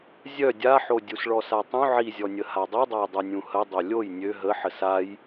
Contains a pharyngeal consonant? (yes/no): yes